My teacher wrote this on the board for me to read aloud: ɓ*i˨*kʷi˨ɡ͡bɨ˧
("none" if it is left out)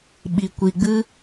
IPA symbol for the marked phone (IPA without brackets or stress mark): i˨